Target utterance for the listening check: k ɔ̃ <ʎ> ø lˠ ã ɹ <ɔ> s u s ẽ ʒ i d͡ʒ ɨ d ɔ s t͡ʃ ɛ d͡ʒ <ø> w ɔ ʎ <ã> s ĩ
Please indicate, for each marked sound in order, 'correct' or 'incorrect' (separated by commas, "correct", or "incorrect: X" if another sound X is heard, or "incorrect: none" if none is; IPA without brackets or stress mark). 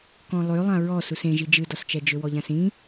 incorrect: lˠ, correct, correct, correct